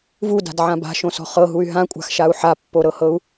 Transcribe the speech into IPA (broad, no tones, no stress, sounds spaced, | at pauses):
v u d a̤ d ʕ ã b a̤ ʃ õ s ɔ̤ χ ɤ ɦ u y̯ ɦ ã kʷʼ a̤ x ʃ a u̯ ħ a pː o ɾ ɤ h ɤ u̯